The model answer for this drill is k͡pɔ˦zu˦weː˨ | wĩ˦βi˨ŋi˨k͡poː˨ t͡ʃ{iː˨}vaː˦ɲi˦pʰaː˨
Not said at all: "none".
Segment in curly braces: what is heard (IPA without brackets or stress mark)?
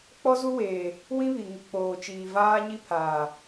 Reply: iː˨